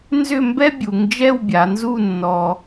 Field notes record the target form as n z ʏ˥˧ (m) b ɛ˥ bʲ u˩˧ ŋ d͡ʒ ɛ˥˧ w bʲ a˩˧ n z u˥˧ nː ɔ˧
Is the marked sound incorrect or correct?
correct